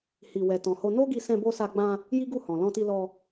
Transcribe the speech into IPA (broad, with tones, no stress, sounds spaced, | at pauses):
h i˨ w ɛ˨ t ɔ̃˨ h o˧ n o˦ ɡ i˧ s ɛ̃˧ b o˧ s a˧ ɡ͡b ã˧ | j i˦ ɡ u˦˨ h ɔ̃˨ l ɔ̃˧ t i˧ l ɔ˧